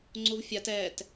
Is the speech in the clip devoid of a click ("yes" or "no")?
no